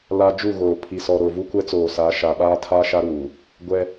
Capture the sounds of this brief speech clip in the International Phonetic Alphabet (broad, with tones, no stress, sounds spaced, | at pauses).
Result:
l a˦ d͡ʒ u˦˨ ɣ oː˨ pʰ i˨ s ɔ˨ ɾ o˨ v u˦ kʷ ɛ˦ t͡s oː˨ s aː˨˦ ʃ a˨ ɓ aː˦ tʰ aː˦ ʃ a˦ ɾ uː˨ | ɡʷ ɛ˦